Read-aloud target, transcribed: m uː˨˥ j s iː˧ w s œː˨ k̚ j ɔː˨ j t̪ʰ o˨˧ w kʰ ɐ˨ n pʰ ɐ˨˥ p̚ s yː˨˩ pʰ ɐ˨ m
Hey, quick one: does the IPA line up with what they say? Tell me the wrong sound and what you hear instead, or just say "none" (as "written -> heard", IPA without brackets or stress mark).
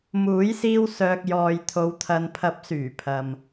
kʰ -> t̪ʰ